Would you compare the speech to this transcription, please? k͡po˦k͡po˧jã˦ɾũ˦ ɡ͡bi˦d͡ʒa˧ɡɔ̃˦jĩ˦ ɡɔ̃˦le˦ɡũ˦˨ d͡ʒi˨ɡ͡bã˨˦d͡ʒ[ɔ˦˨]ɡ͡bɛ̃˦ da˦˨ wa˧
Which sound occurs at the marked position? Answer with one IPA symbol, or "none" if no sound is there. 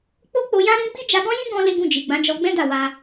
ɔ˧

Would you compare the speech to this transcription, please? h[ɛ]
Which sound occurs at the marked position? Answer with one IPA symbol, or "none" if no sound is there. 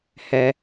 ɛ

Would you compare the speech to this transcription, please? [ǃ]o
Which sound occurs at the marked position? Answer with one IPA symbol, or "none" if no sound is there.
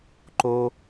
ǃ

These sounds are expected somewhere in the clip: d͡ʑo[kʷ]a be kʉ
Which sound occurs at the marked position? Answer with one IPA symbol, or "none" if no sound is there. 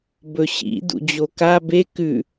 k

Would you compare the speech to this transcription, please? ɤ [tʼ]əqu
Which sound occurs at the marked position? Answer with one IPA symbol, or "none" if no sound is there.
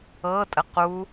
tʼ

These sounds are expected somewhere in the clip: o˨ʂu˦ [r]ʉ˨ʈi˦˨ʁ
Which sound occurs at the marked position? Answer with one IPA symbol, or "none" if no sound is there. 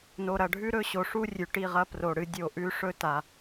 rʲ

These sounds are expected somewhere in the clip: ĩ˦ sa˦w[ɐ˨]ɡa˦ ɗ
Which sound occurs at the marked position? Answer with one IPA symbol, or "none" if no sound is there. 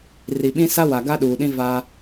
a˨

